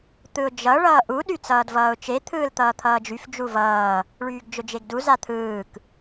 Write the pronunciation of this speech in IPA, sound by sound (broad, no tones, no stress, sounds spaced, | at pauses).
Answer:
t̪ ɯ ʊ̯ d͡ʒ ʌ ɭ ʌː ʔ u ɗ y t͡s ʌː d v ʌː ʊ̯ t͡ʃ e t̪ʰ ɯː l t̪ ʌː t̪ʰ ʌː d͡ʒ y f d͡ʒ u v ʌː | ɭ yː ɡ d͡ʒ ʊ d͡ʒ e ɡ d u z a t̪ʰ ɯː k